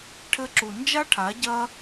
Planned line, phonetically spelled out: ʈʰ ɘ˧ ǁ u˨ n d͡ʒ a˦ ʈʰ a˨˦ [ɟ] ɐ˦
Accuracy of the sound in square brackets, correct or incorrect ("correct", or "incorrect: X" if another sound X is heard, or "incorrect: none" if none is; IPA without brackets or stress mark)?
correct